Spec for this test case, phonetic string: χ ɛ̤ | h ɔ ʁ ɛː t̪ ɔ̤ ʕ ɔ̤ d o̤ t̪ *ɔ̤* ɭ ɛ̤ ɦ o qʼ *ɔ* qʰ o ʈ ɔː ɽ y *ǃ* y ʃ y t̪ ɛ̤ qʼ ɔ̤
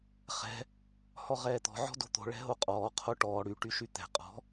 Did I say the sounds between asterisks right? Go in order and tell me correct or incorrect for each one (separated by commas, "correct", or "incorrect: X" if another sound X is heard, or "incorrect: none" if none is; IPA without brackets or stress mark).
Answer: incorrect: o̤, incorrect: ɔː, incorrect: ʈ